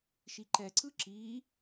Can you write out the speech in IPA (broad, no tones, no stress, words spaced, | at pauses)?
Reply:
ʃiǃɛǀɯ ǁi